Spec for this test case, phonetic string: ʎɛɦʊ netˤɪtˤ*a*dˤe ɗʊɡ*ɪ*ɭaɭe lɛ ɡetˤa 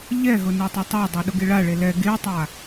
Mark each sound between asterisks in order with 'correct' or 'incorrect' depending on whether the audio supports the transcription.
correct, correct

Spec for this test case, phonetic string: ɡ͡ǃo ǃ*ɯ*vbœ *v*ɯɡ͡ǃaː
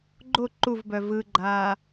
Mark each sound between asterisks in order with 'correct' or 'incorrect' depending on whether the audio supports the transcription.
incorrect, correct

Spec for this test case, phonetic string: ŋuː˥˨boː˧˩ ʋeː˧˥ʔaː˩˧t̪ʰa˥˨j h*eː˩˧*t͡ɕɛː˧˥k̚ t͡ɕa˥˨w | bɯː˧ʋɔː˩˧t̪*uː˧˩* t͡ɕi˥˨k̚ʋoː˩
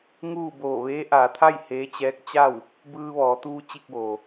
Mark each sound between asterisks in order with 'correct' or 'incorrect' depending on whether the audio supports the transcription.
incorrect, incorrect

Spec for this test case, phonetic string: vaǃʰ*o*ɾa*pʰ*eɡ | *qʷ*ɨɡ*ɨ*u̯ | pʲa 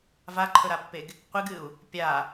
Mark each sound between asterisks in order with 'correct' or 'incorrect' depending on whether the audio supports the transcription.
incorrect, incorrect, correct, correct

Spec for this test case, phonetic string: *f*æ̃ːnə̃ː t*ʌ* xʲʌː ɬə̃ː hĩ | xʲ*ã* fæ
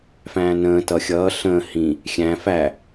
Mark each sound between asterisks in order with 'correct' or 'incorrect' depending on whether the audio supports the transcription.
correct, correct, incorrect

